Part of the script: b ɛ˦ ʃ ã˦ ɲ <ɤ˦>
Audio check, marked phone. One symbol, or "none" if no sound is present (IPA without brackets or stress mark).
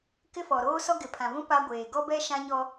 ɔ˦